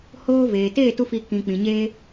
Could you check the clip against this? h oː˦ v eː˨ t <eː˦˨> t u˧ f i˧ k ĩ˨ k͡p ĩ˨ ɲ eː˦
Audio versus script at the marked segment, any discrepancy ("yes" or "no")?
no